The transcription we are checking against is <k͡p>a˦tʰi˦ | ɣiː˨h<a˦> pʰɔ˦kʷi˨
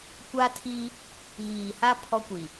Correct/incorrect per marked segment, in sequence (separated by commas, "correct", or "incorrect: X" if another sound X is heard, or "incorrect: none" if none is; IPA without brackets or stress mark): incorrect: kʷ, correct